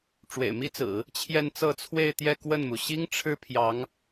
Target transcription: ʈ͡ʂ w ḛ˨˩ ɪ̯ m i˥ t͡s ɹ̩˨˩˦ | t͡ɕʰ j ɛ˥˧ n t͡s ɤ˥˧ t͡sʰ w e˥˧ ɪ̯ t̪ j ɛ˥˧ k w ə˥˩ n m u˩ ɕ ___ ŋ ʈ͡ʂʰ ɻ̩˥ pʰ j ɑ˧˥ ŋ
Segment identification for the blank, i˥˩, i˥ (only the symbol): i˥